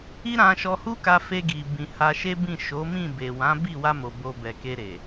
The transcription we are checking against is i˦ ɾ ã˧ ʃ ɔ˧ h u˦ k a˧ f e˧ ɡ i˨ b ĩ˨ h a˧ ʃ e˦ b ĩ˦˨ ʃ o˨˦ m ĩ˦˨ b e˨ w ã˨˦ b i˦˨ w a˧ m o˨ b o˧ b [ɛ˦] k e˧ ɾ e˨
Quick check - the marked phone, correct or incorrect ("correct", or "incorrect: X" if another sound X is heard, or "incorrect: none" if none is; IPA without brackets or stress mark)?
incorrect: ɛ˨